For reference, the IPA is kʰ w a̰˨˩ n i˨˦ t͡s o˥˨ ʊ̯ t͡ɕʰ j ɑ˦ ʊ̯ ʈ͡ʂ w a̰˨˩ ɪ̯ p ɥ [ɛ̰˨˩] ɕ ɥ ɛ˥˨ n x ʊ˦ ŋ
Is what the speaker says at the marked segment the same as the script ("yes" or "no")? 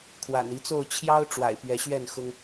no